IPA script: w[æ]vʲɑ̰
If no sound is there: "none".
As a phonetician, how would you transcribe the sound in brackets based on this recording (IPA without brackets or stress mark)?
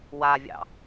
a